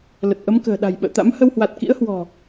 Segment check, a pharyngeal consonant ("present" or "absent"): absent